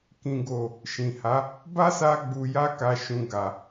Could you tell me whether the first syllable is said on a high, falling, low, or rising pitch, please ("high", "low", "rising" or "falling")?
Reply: low